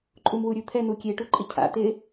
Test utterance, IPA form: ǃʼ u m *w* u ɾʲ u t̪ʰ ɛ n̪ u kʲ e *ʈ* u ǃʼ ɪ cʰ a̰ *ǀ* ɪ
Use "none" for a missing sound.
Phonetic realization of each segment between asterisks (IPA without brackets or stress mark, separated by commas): w, ʈ, t̪